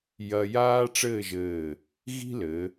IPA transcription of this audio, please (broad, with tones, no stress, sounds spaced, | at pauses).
j ɐ˧ j aː˥ ʈ͡ʂ ɘː˥˧ ʒ ɘː˧˩ | ɣ i̤˥ l ɘ˩˧